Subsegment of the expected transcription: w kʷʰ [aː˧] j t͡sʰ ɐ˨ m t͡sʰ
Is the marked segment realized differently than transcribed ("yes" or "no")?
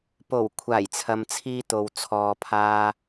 yes